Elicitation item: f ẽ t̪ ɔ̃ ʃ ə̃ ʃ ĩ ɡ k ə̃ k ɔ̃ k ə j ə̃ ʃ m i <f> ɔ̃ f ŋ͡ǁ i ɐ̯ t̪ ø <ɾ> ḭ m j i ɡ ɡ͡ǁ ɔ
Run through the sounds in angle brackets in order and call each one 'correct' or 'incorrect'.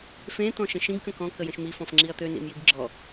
correct, incorrect: n

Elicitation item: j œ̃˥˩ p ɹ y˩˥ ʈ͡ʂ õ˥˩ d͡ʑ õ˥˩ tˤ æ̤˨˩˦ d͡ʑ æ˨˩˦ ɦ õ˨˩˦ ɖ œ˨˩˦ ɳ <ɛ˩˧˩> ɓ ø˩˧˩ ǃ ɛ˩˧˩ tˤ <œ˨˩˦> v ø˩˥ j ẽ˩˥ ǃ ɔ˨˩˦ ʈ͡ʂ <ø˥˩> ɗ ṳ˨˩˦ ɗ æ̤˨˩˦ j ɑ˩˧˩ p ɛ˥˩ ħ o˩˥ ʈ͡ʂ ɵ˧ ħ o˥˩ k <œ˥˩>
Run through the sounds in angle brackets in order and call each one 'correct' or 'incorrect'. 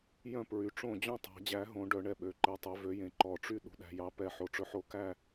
incorrect: ɛ˥˩, correct, incorrect: y˥˩, incorrect: æ˥˩

